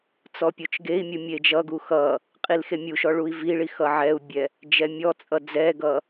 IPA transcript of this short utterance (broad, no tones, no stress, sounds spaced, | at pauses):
t͡s ɔ pʲ o t͡ʃ ɡ e i̯ mʲ u mʲ e d͡ʒ ʌ ɡ u x ʌ | qʼ i l x e mʲ u ʃ ɔ ɭ u i̯ v i ɭ i x ʌ ʕ ɛ u̯ bʲ ɛ | d͡ʒ ɛ mʲ ɔ t͡sʼ ʌ d͡z ɛ ɡ ʌ